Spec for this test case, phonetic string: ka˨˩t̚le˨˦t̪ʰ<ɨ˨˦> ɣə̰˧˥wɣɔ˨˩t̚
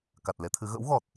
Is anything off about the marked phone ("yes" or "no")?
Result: no